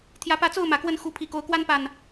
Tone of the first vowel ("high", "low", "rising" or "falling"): rising